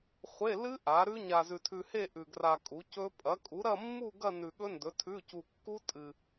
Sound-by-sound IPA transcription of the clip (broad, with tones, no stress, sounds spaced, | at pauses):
χʷ e˧˥˧ l ɨ˦˥ ʔ a˨˥ ɾ ʉ˦˥ ɲ a˧ z ʉ˧ tʰ ʉ˧ h e˥˧ ʔ ʉ˧ ɡ r a˧ kʼ u˨˥ c ɵ˦˥ pʼ ɐ˨˥ kʼ u˨˥ ɾ ɐ˥˧ mː u˥˧ ɡ ɐ˥˧ n ʉ˧ ɠ ɵ˦˥ n d ɵ˨˥ tʰ ʉ˧˥˧ c u˧ kː u˦˥ tʼ ɨ˧